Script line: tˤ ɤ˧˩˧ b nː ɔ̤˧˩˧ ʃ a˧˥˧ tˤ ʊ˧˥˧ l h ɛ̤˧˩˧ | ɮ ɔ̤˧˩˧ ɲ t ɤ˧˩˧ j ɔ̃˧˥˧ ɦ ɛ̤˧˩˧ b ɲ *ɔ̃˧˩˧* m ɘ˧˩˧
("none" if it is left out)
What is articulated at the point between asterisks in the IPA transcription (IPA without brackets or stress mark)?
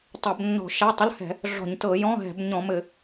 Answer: ɔ̃˧˩˧